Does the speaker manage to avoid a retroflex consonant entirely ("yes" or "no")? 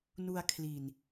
yes